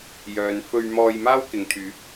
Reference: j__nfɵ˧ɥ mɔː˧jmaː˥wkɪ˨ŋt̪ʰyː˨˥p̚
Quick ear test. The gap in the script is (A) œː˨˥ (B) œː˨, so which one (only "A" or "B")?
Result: B